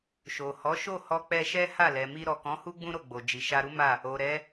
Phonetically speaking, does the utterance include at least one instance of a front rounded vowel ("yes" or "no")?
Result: no